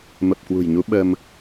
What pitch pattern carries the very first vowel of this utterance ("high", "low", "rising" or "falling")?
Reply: low